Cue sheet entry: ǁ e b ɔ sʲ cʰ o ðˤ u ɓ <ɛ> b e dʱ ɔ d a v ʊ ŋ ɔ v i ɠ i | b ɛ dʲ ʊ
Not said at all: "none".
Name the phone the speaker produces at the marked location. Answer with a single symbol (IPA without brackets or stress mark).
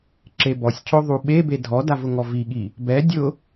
e